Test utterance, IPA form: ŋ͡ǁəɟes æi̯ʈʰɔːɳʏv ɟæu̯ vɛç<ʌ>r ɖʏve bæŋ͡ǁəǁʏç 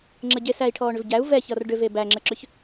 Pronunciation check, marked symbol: correct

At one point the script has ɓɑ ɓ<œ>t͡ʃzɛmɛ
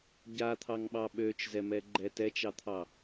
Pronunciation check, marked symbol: incorrect: ø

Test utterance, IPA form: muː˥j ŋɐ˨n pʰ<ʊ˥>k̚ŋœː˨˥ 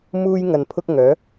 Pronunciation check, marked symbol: correct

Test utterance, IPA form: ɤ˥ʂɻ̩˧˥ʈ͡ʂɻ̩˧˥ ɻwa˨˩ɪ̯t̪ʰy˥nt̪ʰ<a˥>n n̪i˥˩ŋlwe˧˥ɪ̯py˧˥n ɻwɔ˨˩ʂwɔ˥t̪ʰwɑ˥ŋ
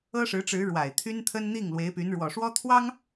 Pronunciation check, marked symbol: incorrect: ə˥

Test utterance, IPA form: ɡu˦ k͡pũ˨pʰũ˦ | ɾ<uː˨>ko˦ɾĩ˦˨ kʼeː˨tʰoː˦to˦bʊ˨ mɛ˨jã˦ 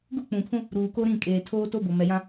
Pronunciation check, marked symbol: correct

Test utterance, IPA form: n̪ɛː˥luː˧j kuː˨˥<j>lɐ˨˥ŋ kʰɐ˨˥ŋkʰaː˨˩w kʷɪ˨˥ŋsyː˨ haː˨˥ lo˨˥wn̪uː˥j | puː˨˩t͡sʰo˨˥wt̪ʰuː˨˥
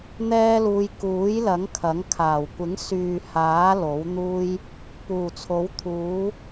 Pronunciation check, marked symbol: correct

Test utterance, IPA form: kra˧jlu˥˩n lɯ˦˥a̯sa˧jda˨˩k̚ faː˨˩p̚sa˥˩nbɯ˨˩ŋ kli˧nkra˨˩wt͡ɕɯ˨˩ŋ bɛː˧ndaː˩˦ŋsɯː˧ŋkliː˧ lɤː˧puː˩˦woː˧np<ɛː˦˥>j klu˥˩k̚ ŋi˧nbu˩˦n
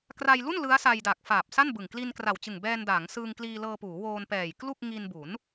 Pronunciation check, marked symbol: incorrect: ɛː˨˩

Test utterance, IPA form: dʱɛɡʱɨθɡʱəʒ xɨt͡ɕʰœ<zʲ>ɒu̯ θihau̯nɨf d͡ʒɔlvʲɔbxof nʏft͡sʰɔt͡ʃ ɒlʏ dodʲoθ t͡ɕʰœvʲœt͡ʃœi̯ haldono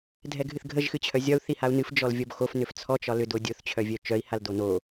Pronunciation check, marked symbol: correct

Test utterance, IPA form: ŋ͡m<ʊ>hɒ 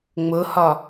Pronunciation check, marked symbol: correct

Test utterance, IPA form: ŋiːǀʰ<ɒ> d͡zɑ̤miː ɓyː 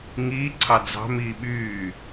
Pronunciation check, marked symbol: incorrect: ɑ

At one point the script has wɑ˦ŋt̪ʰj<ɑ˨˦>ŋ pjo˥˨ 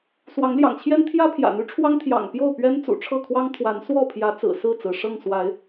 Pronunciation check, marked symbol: incorrect: ɑ̰˨˩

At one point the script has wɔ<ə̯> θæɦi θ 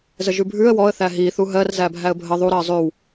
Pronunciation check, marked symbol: correct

